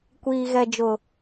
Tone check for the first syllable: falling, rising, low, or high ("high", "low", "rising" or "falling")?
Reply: low